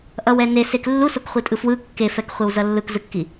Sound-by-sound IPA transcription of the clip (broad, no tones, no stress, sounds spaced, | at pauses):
ʔ ʌ w ɛ n e s e k lː u s o k χʷ i tʼ ɯ f w ɯ kː e f ɛ k χʷ e w z ʌ lː ɯ k z ɯ kː i